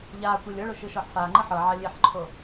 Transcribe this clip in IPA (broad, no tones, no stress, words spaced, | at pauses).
ʎaː kʷelʲɤɭo ʃɯʃɔħfaːŋ͡ǃɯ ħɤʕa lʲeħǃʰo